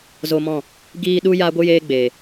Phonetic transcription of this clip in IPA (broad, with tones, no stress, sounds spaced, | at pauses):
z o˧ m ɔ̃˦˨ | ɡ iː˧ ɗ u˦ j aː˦ ɡʷ ɨ˦ j eː˦ ɡ͡b eː˨